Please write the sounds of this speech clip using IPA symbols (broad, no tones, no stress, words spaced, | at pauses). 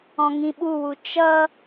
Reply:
ɔ̃ŋĩɓuwu t͡ʃʌ